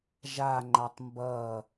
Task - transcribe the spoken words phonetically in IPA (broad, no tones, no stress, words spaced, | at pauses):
ʒa ŋ͡ǃatˤmbʌ